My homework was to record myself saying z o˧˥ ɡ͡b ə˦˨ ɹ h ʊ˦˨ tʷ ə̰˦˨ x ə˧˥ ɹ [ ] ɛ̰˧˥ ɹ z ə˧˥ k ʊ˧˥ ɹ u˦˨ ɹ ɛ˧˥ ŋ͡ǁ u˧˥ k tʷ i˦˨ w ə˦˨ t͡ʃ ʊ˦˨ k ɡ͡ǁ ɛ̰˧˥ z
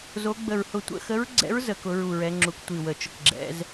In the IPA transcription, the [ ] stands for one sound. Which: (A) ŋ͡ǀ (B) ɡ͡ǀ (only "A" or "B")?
B